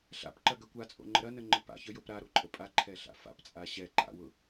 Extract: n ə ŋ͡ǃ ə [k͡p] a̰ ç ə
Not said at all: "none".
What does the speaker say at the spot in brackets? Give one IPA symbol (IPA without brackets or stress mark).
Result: p